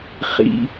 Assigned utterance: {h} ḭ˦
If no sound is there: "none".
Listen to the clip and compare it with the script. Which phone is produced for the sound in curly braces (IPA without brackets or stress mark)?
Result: χ